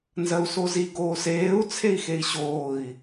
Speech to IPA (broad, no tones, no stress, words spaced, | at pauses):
nzɜu̯sozi ɡoːseːu̯ t͡sʰei̯xei̯ɕoːi̯